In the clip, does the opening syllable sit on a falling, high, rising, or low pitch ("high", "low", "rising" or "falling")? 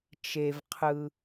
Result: low